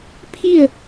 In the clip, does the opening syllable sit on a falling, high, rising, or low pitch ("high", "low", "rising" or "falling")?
falling